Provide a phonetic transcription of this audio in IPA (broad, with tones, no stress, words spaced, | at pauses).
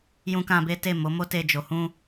jũ˦kã˦be˦ te˦˨ mo˨˦ mo˦te˧ d͡ʒo˨hũ˧